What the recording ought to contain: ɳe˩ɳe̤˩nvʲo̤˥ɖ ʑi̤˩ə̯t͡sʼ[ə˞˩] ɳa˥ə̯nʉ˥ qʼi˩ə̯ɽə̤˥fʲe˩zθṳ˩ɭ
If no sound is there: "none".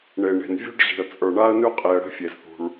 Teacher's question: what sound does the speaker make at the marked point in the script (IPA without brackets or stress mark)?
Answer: ə˞˩